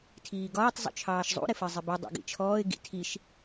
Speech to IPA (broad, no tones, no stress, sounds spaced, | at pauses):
tʰ iː ɡ ɒː tˤ zˤ ṵ t͡ʃʰ ɑː ʃ zˤ ṵ ɾ ɪ f ɜ zˤ ɪ b i dˤ ɑ̰ ɡ ḭ t͡ʃʰ ɔː ɪ̯ ɡ ḭ tʰ i ʃ